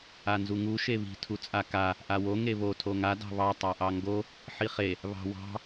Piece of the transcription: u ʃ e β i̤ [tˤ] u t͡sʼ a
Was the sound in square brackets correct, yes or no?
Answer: no